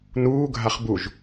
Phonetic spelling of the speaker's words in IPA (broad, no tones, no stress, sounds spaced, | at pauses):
n uː ɡʱ a χ b u ʒ